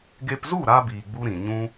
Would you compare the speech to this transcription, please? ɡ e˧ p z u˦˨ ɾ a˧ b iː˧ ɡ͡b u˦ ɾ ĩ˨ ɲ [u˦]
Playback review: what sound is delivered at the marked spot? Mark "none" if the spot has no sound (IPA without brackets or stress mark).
ũ˦